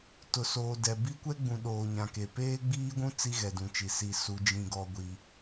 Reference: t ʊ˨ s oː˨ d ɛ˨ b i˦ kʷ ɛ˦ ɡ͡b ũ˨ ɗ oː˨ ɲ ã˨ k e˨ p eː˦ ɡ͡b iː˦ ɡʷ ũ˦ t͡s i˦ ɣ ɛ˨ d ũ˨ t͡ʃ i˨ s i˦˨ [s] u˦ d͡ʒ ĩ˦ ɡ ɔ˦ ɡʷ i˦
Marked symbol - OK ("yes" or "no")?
yes